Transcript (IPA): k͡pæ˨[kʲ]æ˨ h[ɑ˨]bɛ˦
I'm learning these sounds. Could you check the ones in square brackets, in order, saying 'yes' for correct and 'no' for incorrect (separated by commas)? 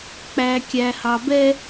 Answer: yes, yes